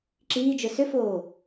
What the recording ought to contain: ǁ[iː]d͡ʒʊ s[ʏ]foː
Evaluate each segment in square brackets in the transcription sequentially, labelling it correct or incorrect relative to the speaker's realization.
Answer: correct, correct

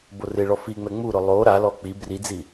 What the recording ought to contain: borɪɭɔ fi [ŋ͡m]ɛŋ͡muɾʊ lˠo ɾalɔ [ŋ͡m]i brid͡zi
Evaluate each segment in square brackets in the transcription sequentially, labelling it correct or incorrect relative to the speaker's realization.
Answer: correct, incorrect: k͡p

